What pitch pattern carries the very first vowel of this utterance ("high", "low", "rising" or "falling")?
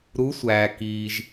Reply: rising